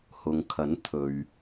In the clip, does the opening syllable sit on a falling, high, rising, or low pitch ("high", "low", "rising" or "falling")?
low